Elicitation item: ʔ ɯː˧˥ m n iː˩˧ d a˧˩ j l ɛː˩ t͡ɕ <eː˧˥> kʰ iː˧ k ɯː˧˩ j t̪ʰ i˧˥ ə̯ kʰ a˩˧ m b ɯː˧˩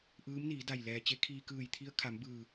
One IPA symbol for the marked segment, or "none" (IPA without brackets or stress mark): e˧˥